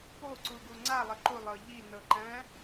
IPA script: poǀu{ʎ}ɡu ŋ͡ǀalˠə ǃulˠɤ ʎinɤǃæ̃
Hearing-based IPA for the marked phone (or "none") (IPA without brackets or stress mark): none